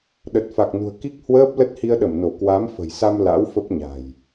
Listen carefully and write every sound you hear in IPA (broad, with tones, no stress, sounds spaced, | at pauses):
ɗ ə˨˩ t̚ f a˨˩ k̚ n ṳ˨˩ ə̯ k i˦˥ k̚ h w əː˦˥ p̚ l ə˦˥ t̚ h i˧ ə̯ ɗ ə˧˩ m n o˧˩ k w a˨˦ m f ə̤˨˩ j s a˧ m l a̰˧˥ w f ə˦˥ p̚ ɲ a̤˨˩ j